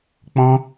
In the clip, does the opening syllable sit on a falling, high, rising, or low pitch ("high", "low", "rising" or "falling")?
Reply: high